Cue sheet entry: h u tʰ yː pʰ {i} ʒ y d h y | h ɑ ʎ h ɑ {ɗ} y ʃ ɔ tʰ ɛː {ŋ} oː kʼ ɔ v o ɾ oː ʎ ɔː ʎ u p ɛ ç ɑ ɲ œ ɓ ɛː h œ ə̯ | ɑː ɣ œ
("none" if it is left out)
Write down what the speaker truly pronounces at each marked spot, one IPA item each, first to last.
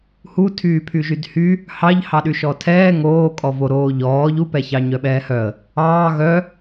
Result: y, ɗ, ŋ

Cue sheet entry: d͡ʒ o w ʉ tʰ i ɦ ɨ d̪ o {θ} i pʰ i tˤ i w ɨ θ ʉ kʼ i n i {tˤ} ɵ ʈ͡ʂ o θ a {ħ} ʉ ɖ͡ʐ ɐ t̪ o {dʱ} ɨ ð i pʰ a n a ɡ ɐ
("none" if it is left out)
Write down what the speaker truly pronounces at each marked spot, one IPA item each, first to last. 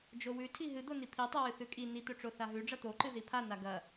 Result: n, t̪, ɦ, ǃ

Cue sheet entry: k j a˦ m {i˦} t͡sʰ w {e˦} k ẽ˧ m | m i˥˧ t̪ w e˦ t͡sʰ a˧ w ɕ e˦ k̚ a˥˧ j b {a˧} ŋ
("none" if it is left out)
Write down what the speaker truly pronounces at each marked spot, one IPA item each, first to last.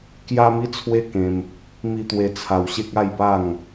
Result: i˦, e˦, a˥˧

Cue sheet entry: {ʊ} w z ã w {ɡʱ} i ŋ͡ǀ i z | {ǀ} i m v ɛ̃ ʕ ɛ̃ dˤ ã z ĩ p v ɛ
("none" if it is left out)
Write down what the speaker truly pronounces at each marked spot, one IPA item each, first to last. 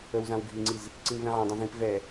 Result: ə, ɡʱ, ǀ

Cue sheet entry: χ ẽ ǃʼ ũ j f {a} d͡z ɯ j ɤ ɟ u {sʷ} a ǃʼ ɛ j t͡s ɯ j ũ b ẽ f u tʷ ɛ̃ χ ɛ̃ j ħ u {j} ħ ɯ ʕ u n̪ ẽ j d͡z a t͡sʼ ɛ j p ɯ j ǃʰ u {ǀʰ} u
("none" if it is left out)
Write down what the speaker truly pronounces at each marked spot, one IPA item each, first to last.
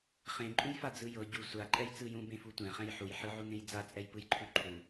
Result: a, sʷ, j, ǃʰ

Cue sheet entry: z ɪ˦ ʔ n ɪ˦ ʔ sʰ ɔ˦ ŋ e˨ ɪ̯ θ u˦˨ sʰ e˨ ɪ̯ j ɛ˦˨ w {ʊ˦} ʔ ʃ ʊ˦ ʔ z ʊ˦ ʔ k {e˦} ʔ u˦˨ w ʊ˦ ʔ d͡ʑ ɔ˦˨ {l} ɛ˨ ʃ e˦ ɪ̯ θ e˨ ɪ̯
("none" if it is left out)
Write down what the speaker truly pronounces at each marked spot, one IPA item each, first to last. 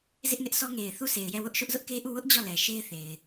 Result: ʊ˦, e˦, l

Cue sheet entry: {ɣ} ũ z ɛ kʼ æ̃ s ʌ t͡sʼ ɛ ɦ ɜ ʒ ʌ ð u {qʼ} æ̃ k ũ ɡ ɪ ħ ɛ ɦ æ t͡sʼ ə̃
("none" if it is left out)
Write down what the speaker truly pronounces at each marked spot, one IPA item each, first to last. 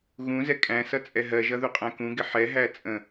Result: ɣ, qʼ

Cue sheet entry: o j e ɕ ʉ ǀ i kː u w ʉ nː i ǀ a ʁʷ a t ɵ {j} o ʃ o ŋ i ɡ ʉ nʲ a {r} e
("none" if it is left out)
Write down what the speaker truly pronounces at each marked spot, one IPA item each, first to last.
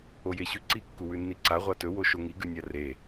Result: w, r

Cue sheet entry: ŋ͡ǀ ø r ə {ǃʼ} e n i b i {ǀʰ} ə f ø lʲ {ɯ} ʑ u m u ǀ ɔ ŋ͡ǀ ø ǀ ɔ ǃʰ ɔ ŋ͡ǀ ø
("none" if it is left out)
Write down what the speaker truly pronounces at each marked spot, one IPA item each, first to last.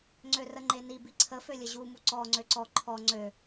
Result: ŋ͡ǃ, ǀʰ, ə

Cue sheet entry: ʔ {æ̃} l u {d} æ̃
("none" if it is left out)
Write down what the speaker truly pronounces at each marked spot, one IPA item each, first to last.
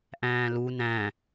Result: æ̃ː, n

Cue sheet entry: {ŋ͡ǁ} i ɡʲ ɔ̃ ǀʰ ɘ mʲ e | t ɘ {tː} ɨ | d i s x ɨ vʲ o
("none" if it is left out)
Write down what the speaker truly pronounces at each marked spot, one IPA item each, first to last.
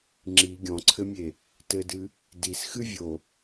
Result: ŋ͡ǁ, d

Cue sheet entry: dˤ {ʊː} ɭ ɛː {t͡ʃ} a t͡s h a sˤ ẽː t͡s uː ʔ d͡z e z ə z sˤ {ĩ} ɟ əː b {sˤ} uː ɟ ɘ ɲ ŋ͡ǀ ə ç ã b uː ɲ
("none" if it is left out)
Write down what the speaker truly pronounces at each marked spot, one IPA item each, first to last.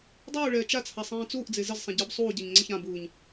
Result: uː, t͡ʃ, ẽ, sˤ

